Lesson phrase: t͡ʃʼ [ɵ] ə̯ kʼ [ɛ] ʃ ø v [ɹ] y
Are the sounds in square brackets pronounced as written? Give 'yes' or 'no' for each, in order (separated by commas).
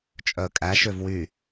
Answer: no, no, no